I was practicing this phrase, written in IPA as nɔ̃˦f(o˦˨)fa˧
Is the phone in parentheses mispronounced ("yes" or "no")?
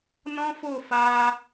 no